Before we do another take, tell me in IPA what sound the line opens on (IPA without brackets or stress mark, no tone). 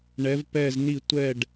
ɳ